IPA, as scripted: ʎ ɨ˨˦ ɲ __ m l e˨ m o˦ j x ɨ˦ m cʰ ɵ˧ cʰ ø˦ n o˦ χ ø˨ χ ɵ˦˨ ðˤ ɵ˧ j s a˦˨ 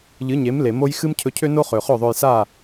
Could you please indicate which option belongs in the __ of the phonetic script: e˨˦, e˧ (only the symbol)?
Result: e˨˦